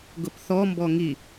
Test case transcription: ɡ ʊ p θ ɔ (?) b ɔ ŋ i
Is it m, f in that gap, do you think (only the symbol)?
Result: m